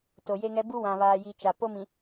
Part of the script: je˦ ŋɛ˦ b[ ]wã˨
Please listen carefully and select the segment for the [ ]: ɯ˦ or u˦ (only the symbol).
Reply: u˦